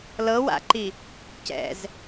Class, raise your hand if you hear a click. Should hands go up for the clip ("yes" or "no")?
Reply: yes